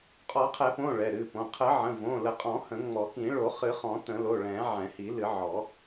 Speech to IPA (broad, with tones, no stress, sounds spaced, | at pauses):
qʼ ɔ˨˩˦ qʰ ɛ˨˩˦ p õ˩˧˩ ɭ ɛ˩˧˩ ɾ ɨ˩˧˩ p õ˩˧˩ qʰ ə˨˩˦ ʕ ə̃˩˧˩ v õ˩˧˩ l ə˨˩˦ qʼ ɔ̃˨˩˦ h ə̃˨˩˦ ŋ͡m ɔ˨˩˦ k ĩ˨˩˦ ɭ o˨˩˦ χ ɨ˨˩˦ χ ɔ̃˨˩˦ t ə̃˨˩˦ l o˩˧˩ ɭ ɛ̃˨˩˦ ʕ ɛ̃˨˩˦ h i˨˩˦ l ɨ˨˩˦ ʕ ɔ˨˩˦